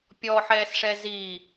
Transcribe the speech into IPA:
pʲ ɔ ħ ɛː s ʂ ɛ z i

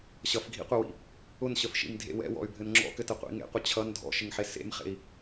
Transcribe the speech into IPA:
ɕ ʌ f ɡʱ ḭ qʷ ɘ w ḭ | ʊ n ɕ ə f ʃ ḭ m dʱ ḛ w ɛ̰ w ɔ̰ y̯ bʱ ɘ n ŋ͡ǁ ɔ̰ k ɘ t ə qʷ ḭ ŋ ḛ qʷ ʌ t͡ɕʰ ʌ n dʱ ɔ̰ ʃ ɪ ŋ ħ e s ḛ m χ ḛ i̯

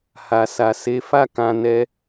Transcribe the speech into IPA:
h a˨ s a˨ s e˨˦ f a˦˨ k ã˨ n ɛ˧

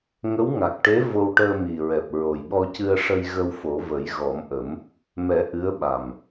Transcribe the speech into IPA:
ŋ ə˧˥ w ŋ a˨˩ k̚ ʈ e˧˥ v o˧ w ʈ əː˧ m i˨˩ ɹ ɛ˨˩ p̚ ɹ o˨˩ j ɓ ɔ˧ c ɨ˧ ə̯ ʂ ə˧ j ɣ ə˧ w f o˨˩˦ v ə˨˩˦ j ɣ ɔ˨˩˦ m ʔ ə˨˩˦ m | m ɛ˨˩˦ ʔ ɨ˧˥ ə̯ ɓ a˨˩ m

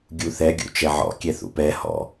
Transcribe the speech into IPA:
ɡʲ u θ ɛ ɡʲ ṵ t͡ʃ ɛ ʕ ɔ̰ kʲ ɛ θ ṵ p ɛ h ɔ̰

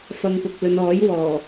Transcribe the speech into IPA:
f ɐ˧ ŋ p ʊ˨ k̚ l ɵ˨˧ n ɔː˨˥ j w ɔː˨˩

